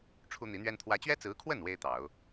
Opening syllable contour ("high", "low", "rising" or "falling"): high